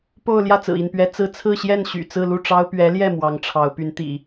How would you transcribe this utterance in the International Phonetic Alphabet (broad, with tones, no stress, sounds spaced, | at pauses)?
p o˥˧ ʊ̯ l j ä˥˩ t͡s ɹ̩˨˩ i˥˩ n p ɥ ɛ˧˥ t͡s ɹ̩˥ t͡sʰ ɹ̩˥˧ ɕ j ɛ˥˩ n ɕ y̰˨˩ t͡s ɹ̩˥˧ l u˥˩ ʈ͡ʂ ɑ˥ ʊ̯ p ɥ ɛ˧˥ l j ɛ˥˩ m w ɑ˧˥ ŋ ʈ͡ʂʰ ɑ˧˥ ʊ̯ p y˧˥ n t̪ ḭ˨˩˦